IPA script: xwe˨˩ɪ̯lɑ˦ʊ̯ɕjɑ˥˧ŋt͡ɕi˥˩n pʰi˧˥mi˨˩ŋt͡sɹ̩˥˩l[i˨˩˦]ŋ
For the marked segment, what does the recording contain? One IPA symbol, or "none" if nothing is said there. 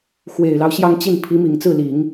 i˨˩˦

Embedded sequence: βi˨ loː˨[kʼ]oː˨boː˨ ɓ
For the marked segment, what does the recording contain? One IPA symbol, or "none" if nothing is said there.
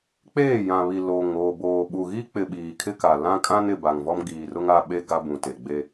ŋ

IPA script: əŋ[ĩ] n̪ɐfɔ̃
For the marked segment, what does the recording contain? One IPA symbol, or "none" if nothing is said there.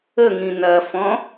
ĩ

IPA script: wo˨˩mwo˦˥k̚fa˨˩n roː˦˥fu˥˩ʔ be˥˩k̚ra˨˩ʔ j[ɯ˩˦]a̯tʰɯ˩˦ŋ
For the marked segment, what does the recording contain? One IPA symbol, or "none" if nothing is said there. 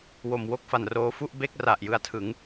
ɯ˨˩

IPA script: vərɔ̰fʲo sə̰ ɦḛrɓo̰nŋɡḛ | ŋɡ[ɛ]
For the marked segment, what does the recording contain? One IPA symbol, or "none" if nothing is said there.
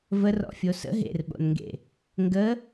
ə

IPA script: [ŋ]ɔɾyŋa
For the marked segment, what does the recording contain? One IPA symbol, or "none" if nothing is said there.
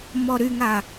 m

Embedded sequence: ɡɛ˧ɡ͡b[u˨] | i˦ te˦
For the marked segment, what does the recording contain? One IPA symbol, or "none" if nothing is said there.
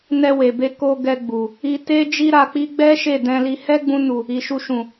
u˨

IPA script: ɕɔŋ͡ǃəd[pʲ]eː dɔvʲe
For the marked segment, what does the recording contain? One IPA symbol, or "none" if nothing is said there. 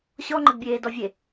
bʲ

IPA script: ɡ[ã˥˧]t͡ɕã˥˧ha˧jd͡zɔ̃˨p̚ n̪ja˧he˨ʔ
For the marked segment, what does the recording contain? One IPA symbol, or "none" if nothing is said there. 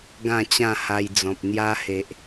ã˥˧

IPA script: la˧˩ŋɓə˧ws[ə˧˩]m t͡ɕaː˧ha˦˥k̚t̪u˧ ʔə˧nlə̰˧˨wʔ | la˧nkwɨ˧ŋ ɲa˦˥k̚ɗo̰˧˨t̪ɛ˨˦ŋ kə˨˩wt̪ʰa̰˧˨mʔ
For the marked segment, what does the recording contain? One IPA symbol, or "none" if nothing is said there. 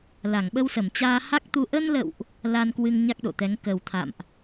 ə˧˩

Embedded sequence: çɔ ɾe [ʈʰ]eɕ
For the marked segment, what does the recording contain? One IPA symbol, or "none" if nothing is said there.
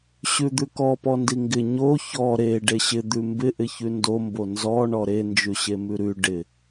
ɖ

